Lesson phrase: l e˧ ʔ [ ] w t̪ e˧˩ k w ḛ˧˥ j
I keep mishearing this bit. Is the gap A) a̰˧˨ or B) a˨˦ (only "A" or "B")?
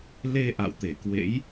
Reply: A